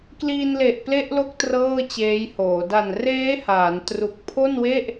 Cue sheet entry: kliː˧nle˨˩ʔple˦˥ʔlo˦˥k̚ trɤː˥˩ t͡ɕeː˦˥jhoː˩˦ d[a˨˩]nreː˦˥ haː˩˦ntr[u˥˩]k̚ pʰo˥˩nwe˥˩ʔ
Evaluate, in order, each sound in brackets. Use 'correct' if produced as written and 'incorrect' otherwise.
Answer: correct, incorrect: u˨˩

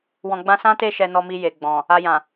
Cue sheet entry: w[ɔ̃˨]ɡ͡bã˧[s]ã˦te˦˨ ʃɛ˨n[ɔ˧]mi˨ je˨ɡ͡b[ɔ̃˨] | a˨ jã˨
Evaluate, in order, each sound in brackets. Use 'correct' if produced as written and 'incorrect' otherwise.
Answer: correct, correct, incorrect: ɔ˨, correct

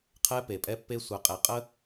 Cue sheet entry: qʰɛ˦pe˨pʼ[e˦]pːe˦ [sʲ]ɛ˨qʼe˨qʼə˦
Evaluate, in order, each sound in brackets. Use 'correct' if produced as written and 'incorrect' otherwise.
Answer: incorrect: ɛ˦, incorrect: sʷ

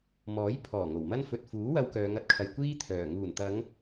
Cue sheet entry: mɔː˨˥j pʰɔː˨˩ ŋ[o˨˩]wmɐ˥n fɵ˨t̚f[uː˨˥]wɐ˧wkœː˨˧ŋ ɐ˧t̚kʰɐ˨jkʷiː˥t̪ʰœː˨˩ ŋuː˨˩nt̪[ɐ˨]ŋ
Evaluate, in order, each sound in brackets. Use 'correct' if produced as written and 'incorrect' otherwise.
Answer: correct, correct, incorrect: ɐ˨˧

